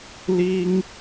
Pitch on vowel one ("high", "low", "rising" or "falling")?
high